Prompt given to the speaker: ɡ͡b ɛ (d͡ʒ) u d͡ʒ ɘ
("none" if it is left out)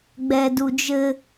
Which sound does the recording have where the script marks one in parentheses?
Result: d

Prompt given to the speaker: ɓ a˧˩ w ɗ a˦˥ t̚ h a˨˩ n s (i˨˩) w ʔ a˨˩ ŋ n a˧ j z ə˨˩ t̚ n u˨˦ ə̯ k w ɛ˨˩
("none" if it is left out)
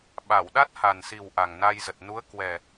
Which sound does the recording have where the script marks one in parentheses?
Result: i˨˩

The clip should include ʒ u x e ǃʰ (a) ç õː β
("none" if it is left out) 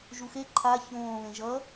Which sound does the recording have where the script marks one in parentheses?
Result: a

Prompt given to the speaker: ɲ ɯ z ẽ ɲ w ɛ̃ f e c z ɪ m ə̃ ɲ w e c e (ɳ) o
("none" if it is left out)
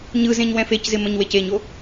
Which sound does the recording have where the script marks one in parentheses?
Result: ɲ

